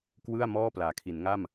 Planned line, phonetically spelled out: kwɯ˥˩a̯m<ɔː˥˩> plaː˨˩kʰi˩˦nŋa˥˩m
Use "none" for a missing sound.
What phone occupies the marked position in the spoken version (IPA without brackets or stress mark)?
ɔː˥˩